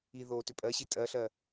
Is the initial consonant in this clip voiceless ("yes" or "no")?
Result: no